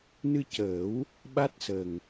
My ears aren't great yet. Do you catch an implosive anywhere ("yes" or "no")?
yes